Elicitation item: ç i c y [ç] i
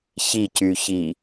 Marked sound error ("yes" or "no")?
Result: no